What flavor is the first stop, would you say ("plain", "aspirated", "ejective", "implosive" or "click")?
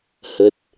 plain